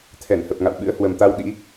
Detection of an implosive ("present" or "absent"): present